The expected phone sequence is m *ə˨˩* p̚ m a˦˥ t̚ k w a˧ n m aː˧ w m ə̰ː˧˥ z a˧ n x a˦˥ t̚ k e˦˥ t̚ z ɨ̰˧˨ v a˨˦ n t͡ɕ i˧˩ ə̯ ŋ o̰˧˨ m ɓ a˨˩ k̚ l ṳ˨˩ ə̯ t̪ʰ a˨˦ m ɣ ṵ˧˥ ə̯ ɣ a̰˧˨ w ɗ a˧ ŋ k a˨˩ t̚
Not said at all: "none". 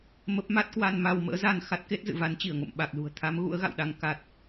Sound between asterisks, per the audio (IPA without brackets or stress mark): ə˦˥